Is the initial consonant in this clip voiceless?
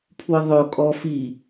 yes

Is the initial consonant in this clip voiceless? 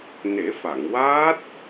no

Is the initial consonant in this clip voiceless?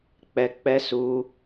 yes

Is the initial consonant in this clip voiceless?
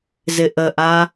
no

